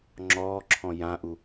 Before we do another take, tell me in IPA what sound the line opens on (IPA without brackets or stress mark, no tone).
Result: ŋ͡ǁ